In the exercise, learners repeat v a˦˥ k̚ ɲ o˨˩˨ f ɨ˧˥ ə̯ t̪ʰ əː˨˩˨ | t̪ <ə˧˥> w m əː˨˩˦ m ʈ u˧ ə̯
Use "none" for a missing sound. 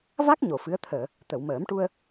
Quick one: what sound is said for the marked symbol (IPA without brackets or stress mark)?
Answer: ə˨˩˨